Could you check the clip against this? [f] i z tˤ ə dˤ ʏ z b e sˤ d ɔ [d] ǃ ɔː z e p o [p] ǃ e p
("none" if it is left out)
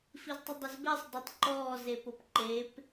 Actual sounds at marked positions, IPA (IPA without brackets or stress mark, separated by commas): f, tˤ, p